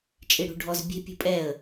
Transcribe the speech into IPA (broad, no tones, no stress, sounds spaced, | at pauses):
t͡ʃʼ i ɽ ṳ ɖʱ ɔ z bʲ ɛ̤ pʲ ṳ pʼ ɛ ə̯